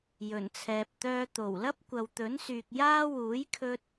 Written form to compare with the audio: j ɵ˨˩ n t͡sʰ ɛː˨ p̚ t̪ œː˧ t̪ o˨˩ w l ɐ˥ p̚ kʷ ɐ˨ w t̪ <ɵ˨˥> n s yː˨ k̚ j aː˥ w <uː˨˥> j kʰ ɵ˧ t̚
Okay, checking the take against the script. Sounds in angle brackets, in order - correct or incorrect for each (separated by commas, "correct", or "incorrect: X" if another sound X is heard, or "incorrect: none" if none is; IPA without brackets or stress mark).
correct, correct